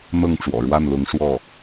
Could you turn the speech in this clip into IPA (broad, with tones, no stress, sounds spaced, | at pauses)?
n̪ ɤ˥˩ ŋ ʈ͡ʂ w ɔ̰˨˩ ɻ w a˥˩ n l ʊ˧˥ ŋ ʂ w ɔ˥˩